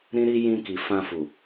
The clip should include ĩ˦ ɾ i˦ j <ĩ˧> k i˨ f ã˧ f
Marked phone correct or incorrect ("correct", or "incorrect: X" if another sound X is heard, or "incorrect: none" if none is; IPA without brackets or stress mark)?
correct